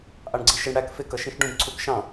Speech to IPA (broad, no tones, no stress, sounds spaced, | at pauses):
ʔ ɑ ɳ ɡ͡ǀ i ʃ ɪ ɳ ɽ æ k f ɪ k ʌ ʃ ĩ ʃ ɖ ũ b ǀʰ u k ʃ ɑ̃